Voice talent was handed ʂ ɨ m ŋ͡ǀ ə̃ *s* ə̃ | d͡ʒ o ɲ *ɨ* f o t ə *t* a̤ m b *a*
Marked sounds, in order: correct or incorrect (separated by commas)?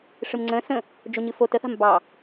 correct, correct, incorrect, incorrect